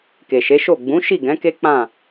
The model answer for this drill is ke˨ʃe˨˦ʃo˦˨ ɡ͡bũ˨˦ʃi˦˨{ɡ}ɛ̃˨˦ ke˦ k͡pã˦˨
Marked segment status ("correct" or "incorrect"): correct